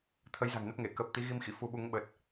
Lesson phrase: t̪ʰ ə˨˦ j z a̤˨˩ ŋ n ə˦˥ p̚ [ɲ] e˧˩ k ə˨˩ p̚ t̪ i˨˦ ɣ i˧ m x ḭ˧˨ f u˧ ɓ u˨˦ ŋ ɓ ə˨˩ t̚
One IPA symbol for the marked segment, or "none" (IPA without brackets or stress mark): ŋ